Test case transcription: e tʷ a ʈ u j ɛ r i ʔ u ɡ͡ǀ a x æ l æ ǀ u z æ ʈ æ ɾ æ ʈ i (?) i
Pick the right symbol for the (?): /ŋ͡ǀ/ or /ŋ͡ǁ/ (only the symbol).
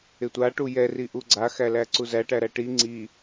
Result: ŋ͡ǀ